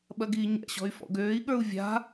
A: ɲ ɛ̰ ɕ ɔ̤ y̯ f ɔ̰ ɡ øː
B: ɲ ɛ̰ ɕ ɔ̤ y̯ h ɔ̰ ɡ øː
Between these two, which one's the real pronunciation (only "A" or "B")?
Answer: A